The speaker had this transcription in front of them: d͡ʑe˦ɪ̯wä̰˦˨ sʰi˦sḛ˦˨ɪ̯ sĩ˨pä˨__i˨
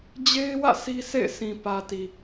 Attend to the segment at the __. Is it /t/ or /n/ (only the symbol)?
t